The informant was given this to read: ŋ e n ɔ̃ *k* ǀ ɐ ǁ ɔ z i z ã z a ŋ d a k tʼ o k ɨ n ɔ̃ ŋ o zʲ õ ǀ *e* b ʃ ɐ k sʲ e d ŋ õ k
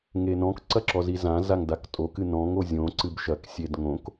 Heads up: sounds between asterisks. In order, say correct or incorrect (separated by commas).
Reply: correct, incorrect